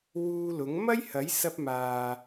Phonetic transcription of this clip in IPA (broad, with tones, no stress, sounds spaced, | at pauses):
w uː˧ l ʊ˨˥ ŋ m ɐ˥ j h ɐ˨˥ j s ɐ˧ p̚ m aː˨